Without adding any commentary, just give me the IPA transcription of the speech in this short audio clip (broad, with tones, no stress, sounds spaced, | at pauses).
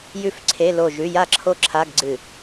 j ʉ˦˨ f ǀʰ e˧˥˧ l o˦˨ ʒ ʉ˧˥˧ j a˦˨ ǁʰ o˦˨ ǁʰ a˧˥˧ ɡ ɡ͡ǀ ɨ˦˨